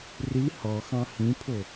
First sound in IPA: r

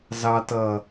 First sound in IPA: z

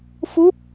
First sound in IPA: f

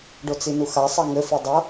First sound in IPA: ɖ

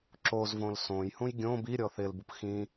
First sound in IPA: ǁ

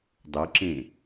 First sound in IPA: dˤ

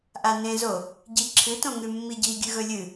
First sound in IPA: ʔ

